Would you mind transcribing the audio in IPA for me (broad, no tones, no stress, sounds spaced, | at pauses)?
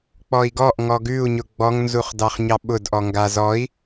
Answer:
k͡p ɔ i̯ ɡ ɔ ʔ ŋ ɔ ɡ ʉ u̯ ɲ ʊ ɡ͡b ɔ ŋ n z u χ d ɑ χ ɲ ɑ ɓ ʊ d ʔ ɔ ŋ ɡ a z ɔ i̯